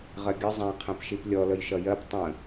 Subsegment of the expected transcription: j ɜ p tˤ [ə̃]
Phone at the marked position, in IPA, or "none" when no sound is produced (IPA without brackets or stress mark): ə̃